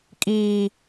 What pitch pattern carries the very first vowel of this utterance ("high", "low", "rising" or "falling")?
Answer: high